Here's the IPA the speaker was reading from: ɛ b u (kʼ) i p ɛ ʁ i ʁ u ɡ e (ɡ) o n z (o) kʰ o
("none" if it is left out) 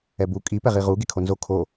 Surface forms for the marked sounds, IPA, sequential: kʼ, kʰ, o

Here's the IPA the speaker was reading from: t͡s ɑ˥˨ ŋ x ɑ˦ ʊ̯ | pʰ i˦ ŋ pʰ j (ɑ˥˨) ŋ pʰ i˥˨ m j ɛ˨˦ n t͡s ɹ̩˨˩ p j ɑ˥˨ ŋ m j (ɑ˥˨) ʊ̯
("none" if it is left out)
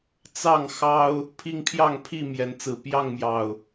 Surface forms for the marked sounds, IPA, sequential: ɑ˥˨, ɑ˨˩

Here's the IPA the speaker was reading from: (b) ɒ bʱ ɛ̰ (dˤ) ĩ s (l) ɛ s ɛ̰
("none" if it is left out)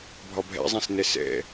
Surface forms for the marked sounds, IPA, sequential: bʱ, zˤ, n

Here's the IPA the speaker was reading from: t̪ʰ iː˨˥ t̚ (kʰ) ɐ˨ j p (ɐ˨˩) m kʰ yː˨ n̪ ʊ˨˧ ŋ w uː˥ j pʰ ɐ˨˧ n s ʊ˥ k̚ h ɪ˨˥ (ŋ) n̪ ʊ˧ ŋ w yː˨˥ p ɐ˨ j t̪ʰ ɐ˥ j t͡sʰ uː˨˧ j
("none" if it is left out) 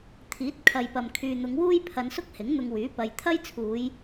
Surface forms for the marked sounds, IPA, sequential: kʰ, ɐ˨, ŋ

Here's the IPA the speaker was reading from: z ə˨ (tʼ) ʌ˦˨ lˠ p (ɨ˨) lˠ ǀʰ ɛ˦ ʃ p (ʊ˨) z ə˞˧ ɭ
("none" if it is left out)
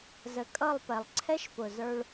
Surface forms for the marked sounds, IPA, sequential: kʼ, ɛ˨, ʊ˨

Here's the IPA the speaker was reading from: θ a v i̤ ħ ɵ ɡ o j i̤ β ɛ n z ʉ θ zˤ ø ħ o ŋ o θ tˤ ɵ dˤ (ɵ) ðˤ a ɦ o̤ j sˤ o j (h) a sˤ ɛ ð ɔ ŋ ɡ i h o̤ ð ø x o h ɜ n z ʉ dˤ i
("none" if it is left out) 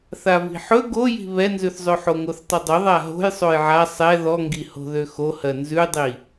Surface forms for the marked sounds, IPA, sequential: ɵ, ʕ

